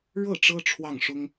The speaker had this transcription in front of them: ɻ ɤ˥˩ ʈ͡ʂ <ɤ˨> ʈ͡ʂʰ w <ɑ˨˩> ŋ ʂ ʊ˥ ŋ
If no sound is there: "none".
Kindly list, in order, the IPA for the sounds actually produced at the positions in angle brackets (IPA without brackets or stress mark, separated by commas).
ɤ˥, ɑ˥˩